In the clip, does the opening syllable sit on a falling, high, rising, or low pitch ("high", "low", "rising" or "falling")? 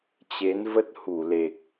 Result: rising